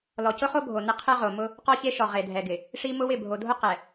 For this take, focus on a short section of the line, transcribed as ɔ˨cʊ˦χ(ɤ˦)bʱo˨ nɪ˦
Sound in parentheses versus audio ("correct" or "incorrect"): incorrect